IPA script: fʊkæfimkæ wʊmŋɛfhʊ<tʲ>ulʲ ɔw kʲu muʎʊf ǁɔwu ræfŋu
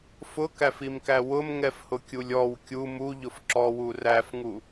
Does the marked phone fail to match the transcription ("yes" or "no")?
yes